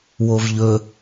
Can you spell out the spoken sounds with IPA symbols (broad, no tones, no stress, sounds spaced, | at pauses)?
w o v ʎ ɵ